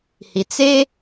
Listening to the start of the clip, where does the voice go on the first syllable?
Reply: low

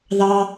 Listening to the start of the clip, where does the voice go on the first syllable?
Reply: high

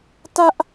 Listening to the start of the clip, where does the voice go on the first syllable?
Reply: high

